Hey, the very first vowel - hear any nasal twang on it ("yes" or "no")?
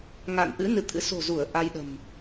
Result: no